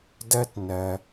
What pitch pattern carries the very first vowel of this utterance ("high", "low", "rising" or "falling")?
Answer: high